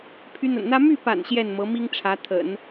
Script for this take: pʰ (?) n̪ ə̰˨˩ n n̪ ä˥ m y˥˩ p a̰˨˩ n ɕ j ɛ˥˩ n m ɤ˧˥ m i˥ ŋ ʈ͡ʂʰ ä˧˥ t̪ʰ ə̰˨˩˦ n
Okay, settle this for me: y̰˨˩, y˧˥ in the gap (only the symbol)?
y˧˥